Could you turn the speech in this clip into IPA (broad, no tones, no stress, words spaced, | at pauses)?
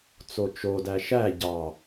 t͡sot͡ʃodæ ʃæ ɟɑ